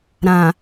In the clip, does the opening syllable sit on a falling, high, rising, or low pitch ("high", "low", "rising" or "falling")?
low